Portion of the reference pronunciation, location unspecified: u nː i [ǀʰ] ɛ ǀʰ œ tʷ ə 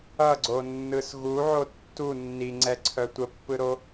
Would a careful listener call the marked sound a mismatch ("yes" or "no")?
yes